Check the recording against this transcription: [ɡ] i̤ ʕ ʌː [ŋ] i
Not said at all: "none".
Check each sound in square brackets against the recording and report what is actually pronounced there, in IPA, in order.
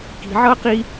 k, q

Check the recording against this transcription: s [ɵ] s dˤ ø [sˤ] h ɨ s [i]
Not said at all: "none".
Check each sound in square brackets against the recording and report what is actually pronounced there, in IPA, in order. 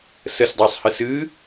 ə, sˤ, ɨ

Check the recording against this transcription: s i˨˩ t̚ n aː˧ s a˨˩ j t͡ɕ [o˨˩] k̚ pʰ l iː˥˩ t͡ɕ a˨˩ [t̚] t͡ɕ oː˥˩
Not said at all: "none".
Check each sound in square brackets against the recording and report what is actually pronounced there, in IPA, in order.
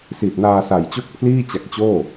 o˥˩, k̚

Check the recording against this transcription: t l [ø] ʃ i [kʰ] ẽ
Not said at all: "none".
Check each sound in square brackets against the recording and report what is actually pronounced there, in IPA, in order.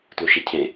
u, cʰ

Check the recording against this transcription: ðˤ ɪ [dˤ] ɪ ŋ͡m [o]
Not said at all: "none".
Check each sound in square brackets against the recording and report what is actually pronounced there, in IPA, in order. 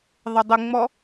dˤ, ɔ

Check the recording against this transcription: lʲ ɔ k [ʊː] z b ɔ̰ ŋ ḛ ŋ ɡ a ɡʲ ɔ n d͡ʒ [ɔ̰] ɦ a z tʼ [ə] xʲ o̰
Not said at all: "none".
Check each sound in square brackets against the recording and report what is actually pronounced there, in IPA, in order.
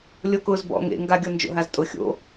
ʊː, o̰, ʊ

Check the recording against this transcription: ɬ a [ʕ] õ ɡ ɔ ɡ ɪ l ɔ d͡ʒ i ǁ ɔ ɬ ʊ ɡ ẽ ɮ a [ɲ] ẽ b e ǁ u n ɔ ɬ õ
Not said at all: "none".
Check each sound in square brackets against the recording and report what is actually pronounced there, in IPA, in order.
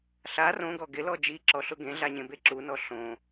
r, ɲ

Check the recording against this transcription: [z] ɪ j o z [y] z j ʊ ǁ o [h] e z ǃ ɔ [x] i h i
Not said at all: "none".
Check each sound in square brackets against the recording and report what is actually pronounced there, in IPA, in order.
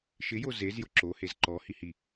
ʃ, e, h, h

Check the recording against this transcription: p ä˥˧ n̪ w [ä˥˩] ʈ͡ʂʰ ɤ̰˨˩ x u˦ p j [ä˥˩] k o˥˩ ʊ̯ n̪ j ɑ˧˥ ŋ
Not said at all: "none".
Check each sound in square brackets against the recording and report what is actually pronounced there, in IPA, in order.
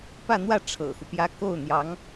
ä˥˩, ä˥

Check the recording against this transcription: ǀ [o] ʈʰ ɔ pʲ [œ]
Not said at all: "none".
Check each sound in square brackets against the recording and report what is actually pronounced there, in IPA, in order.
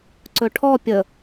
ɵ, ə

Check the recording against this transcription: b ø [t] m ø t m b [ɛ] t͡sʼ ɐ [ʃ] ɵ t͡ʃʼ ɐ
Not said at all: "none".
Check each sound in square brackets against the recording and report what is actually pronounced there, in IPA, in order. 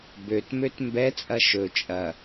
t, ɛ, ʃ

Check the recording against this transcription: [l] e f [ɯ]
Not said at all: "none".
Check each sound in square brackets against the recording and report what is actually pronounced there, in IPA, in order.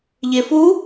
ʎ, u

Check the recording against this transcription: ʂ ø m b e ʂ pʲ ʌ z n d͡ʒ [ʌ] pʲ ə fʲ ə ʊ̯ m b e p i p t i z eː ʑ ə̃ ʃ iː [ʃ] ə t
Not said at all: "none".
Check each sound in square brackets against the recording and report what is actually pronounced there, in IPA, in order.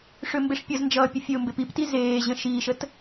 ʌː, ʃ

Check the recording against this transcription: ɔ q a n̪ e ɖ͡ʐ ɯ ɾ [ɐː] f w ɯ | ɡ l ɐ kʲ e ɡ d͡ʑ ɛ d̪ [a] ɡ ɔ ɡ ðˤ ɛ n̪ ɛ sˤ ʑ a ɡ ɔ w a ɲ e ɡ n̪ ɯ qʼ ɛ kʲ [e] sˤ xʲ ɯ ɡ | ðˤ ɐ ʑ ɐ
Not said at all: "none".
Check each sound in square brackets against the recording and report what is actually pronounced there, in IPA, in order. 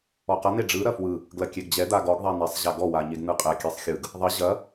ɐ, a, ɛ

